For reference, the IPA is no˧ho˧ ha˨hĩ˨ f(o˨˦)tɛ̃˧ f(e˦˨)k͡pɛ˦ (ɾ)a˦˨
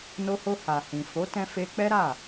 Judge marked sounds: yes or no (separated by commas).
yes, no, yes